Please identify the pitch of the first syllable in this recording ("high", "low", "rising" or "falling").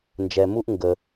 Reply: low